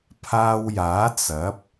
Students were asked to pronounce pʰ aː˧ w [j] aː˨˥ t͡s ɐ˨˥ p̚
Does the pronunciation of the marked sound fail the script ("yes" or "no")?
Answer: no